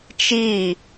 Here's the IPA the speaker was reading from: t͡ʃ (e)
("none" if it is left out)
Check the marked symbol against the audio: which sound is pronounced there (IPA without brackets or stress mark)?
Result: i